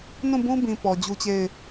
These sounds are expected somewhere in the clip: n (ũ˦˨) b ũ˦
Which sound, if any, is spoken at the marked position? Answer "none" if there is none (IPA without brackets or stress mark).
ũ˦˨